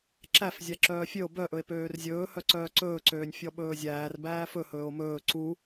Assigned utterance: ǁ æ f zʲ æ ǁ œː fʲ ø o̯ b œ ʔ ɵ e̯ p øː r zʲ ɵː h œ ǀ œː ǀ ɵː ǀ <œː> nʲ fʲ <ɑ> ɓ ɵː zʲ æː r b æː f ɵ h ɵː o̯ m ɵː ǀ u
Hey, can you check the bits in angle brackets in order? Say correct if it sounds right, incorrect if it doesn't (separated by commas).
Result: incorrect, incorrect